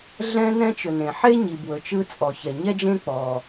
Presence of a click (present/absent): absent